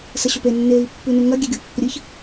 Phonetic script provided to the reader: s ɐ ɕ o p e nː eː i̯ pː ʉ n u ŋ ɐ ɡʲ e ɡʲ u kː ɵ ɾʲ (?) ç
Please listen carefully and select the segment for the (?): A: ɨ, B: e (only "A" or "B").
A